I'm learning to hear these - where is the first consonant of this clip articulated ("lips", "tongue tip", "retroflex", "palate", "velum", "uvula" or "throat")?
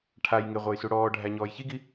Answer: retroflex